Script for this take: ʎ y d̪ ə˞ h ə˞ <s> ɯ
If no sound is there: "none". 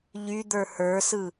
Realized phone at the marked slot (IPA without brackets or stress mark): s